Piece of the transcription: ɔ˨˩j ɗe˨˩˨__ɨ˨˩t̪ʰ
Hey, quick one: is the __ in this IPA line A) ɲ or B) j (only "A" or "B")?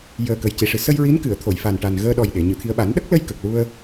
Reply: A